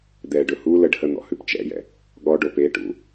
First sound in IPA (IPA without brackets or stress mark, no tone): d̪